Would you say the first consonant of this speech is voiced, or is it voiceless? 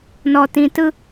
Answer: voiced